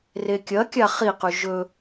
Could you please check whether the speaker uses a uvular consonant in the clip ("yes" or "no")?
yes